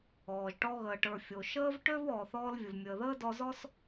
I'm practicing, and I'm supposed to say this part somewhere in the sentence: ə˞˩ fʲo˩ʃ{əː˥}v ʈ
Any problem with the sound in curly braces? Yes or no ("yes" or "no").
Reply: no